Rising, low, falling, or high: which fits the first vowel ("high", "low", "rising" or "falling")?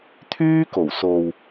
high